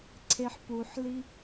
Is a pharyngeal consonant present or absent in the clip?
present